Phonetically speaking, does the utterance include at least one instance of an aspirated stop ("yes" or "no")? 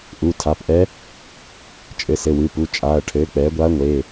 yes